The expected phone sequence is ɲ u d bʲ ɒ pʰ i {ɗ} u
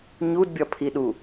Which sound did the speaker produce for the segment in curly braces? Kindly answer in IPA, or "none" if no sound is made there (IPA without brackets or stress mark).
ɗ